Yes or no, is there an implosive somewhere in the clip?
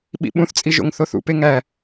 yes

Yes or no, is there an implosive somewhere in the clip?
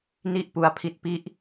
no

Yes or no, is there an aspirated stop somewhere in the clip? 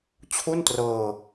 yes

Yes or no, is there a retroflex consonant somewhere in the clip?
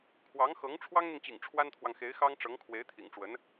yes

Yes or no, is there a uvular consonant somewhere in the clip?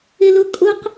yes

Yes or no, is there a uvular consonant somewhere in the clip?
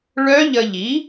no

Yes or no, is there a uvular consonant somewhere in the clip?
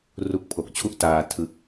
no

